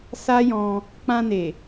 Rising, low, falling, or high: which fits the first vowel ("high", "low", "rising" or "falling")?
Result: high